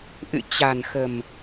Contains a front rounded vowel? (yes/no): no